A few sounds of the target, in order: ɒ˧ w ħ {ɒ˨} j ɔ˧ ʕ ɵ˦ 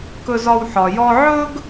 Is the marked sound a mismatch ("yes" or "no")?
no